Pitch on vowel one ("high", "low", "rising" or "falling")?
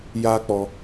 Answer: high